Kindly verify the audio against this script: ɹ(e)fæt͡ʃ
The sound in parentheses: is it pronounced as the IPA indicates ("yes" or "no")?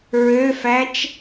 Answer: no